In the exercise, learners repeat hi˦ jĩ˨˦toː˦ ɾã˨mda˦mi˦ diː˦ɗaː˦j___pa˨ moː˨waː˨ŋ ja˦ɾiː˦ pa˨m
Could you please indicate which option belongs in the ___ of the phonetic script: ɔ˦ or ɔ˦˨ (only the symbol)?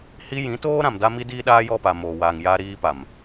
ɔ˦˨